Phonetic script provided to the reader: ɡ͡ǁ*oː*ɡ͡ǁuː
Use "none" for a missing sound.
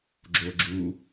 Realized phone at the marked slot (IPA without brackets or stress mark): oː